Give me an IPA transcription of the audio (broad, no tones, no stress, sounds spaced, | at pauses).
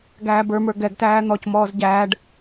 ɡ æː b ə˞ m ə˞ ɡ ɛ ɡ t æː n̪ ɔ c m ɔː z ɟ æː ɖ